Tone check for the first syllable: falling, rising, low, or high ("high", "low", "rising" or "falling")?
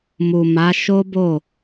low